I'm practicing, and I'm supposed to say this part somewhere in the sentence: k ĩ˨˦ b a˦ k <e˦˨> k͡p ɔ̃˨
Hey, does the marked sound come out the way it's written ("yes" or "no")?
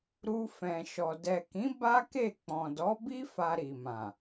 yes